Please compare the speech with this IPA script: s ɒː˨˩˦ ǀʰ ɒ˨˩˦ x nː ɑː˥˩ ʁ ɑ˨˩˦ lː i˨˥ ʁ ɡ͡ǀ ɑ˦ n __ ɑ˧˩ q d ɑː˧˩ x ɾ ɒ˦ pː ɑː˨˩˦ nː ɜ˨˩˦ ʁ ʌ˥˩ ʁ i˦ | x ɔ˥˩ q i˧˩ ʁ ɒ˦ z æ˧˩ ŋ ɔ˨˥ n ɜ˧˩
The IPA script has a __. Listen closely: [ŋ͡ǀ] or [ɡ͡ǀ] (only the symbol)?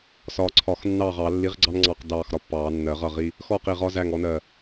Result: ŋ͡ǀ